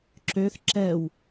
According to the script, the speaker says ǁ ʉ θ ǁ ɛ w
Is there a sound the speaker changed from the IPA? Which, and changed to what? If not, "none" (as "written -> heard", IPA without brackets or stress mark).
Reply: ʉ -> ø